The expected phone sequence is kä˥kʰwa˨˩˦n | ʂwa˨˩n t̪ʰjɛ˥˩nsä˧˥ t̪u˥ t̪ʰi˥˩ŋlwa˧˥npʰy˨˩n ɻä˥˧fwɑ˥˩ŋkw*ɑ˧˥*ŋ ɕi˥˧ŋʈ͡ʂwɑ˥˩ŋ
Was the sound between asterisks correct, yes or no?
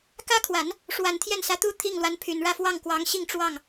yes